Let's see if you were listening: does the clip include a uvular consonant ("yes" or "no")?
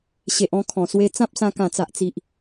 no